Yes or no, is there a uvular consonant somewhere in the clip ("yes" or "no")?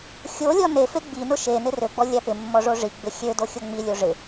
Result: no